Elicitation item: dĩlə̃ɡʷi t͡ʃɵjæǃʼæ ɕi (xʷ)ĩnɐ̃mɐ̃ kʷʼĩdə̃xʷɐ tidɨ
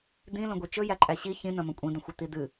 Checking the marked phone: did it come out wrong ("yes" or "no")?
yes